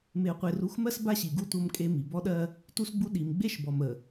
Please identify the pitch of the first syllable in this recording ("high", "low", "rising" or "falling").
low